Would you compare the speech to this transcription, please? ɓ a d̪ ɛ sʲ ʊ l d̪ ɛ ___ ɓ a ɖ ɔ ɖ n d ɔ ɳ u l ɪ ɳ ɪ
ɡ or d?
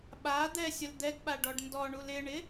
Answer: ɡ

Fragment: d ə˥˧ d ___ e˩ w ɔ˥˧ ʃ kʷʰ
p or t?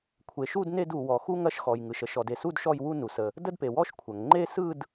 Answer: p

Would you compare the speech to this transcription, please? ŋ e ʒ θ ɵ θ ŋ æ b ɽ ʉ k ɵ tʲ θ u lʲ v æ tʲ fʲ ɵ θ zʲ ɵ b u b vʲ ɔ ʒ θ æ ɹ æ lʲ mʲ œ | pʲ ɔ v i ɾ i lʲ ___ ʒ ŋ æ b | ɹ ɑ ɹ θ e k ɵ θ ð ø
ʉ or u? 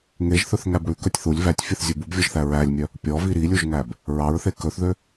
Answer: u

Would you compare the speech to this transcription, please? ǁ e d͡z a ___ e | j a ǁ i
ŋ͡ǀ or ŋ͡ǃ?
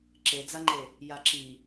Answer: ŋ͡ǃ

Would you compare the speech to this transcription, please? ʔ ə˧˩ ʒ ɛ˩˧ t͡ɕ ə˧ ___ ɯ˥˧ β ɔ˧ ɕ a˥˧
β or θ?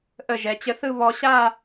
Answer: θ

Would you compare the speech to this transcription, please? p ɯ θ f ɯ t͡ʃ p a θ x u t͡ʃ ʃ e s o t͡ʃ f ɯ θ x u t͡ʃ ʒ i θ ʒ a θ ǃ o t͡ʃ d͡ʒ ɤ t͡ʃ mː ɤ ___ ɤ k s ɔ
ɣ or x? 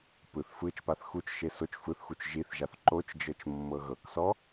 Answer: ɣ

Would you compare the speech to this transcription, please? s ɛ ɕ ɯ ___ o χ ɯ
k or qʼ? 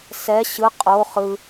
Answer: qʼ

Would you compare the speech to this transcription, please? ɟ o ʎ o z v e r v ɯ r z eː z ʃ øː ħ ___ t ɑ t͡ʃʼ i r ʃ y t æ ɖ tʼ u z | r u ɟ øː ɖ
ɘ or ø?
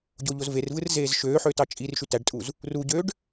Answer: ø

